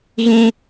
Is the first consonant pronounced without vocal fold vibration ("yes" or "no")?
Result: no